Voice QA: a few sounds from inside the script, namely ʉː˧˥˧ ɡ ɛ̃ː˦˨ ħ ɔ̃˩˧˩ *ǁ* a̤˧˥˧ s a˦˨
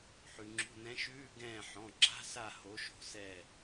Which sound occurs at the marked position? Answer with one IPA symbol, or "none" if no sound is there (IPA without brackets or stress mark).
ǁ